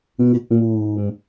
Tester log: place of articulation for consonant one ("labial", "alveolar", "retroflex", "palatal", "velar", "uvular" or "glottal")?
velar